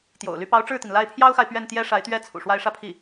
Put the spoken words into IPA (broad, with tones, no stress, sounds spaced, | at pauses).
t̪ j o̰˨˩ ʊ̯ l y˧˥ p ɑ˧˥ ʊ̯ ʈ͡ʂ ɻ̩˥˩ t̪ i˩ n l a˥˩ ɪ̯ pʰ j ɑ˥ ʊ̯ x a˨ ɪ̯ p ɥ ɛ˥˩ n t̪ j ɛ˥ ʂ a˧˥ ɪ̯ t̪ ɥ ɛ˥ t͡sʰ ṵ˨˩ ʂ w a˥˧ ɪ̯ ʂ ä˥˧ pʰ i˥˩